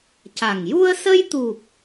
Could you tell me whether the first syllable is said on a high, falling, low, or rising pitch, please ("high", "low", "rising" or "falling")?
low